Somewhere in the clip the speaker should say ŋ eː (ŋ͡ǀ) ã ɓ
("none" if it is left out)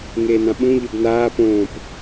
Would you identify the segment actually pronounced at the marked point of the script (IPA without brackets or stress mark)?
n